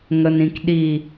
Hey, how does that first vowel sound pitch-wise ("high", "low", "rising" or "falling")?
low